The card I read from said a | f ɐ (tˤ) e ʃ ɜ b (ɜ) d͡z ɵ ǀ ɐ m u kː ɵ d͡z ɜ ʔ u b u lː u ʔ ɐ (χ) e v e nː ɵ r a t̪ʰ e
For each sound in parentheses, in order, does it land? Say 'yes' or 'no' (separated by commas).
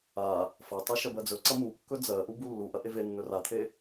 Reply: yes, yes, no